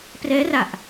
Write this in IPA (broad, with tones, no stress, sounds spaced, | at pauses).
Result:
p r ɛː˦˥ r a˨˩ ʔ